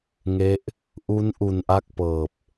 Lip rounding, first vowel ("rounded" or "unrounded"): unrounded